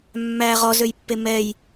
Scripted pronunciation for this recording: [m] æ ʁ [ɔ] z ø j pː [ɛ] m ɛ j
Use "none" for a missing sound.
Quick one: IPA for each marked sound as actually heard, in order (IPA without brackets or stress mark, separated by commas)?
mː, ɔ, e